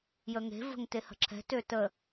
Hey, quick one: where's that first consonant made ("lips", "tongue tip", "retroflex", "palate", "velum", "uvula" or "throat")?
palate